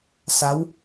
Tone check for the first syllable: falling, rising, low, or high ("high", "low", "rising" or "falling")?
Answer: rising